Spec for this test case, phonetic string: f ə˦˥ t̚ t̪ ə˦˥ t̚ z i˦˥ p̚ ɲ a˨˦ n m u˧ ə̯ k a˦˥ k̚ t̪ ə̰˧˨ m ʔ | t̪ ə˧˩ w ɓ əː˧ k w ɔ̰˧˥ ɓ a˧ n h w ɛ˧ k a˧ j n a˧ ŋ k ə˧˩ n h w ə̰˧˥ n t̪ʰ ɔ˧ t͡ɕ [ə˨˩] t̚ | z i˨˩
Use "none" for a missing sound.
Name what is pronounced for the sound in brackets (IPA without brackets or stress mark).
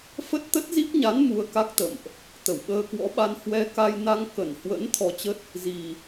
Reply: ə˦˥